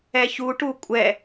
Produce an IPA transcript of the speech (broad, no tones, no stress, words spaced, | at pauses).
ɛçuʈu kʷʼɛ